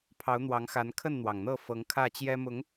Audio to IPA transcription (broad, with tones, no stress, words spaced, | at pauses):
pʰɑ˨˦ʊ̯n̪wɑ˨˦ŋxa˨˦n kʰə˥˨nn̪wɑ˩ŋn̪ɤ˥˨ fɤ˨˦ŋkʰä˥˨t͡ɕjɛ˦ mʊ˨˦ŋ